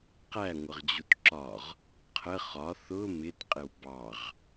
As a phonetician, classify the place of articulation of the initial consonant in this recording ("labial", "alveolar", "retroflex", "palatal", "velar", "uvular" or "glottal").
uvular